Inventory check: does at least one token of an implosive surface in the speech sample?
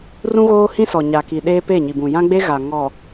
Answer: yes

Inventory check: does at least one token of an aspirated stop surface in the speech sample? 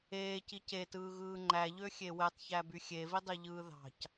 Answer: no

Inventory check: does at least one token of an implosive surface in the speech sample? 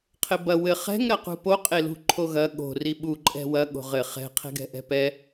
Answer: yes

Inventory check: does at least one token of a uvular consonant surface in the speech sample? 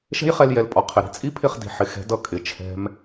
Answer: yes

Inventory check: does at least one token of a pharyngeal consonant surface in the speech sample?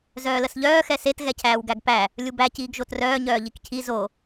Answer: no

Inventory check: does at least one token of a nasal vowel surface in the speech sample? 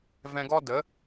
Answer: yes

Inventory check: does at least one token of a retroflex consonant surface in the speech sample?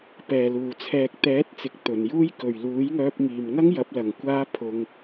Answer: no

